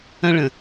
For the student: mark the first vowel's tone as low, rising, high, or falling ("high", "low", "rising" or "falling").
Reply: high